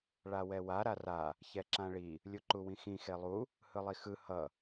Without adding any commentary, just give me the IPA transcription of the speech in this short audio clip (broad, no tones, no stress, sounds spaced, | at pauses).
ɭ a w ɛ w a ɾ a r a | ç ɛ ǁ ã ɭ i | lʲ u ǃ u w ĩ x ĩ x e lˠ u | h ɯ lˠ i x ɯ h ʌ